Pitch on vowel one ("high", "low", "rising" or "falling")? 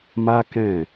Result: high